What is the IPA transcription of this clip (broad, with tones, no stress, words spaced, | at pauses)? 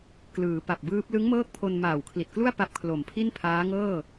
klɯː˩˦pa˨˩p̚bɯː˦˥p̚ lɯ˦˥ŋmɤː˦˥k̚ pʰo˧nmaː˨˩wkʰli˨˩t̚klu˥˩a̯ pa˦˥p̚kʰlo˨˩mpʰi˥˩npʰaː˦˥ ŋɤː˥˩